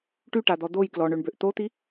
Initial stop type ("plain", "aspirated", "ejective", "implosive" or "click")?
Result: plain